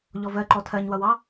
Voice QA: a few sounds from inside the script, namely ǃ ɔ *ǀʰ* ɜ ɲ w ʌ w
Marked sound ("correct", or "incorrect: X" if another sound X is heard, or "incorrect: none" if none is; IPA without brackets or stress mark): incorrect: tʰ